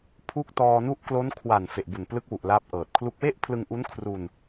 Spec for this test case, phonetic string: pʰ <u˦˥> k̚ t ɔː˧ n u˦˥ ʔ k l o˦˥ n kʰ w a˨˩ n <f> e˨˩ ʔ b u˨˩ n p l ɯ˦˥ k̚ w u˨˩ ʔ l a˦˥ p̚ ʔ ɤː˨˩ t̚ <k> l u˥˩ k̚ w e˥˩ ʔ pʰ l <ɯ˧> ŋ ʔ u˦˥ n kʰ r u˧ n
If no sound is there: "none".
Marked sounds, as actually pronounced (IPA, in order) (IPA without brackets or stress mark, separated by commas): u˥˩, f, kʰ, ɯ˧